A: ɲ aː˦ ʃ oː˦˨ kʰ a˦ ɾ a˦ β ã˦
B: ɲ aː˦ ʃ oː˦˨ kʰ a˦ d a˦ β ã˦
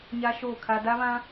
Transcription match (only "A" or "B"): B